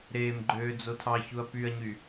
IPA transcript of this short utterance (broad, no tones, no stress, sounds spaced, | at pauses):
ɾ eː m ɡ͡ǃ øː d͡z o tʰ ɑ ç u ɐ̯ p y ɐ̯ ɲ y